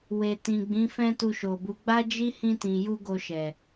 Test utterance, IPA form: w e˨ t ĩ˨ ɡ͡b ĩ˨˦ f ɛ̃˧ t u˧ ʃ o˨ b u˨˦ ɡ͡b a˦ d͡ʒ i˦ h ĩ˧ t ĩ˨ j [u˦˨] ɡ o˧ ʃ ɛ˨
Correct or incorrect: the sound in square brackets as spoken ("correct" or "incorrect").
incorrect